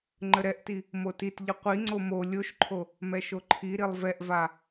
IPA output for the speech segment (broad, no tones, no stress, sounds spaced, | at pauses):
ŋ͡ǃ ə ɾ ɛ ʔ t i | m o t i t ʎ ə qʷ i ŋ͡ǀ o m o lʲ o ʃ ǃʰ o | m ɛ ʃ o ǃʰ i ɾ i lˠ v ɛ ʔ v a